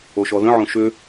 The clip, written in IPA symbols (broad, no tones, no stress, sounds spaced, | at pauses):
o ʃ ɔ ð ə̃ ʕ õ ʃ ʏ